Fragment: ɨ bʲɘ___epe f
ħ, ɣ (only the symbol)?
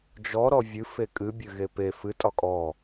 ɣ